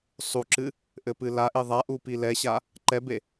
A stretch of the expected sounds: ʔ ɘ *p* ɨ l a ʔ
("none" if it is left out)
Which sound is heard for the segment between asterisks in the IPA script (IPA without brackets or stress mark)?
p